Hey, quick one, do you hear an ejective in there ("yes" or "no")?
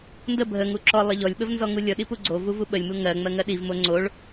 no